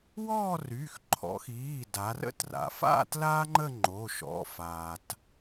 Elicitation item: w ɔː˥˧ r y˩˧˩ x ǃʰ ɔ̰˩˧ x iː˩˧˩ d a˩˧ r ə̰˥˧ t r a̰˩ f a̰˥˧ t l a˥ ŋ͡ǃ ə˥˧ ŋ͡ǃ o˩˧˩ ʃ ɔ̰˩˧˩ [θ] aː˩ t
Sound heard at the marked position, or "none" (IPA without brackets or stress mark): f